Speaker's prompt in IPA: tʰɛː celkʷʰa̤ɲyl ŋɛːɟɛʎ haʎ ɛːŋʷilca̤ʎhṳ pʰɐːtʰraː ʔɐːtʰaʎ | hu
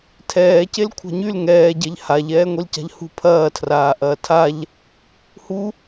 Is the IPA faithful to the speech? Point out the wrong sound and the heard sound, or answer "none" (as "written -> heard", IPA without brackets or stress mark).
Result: none